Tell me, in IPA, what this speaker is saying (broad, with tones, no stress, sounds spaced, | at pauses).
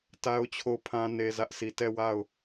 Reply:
t a˦ ʊ̯ t͡ɕʰ o˦˨ ʊ̯ pʰ ã˦ n e˦ z ä˦ ʔ sʰ i˦˨ t ɛ˦˨ w a˦˨ ʊ̯